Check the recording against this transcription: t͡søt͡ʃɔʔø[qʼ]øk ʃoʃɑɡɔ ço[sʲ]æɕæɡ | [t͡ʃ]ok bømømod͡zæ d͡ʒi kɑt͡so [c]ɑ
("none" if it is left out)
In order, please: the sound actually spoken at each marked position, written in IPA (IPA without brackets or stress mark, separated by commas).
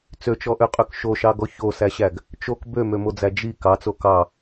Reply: qʼ, s, t͡ʃ, k